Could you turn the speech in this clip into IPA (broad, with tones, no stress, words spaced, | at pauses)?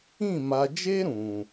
ĩ˦˨ ma˨d͡ʒe˦ɾũ˨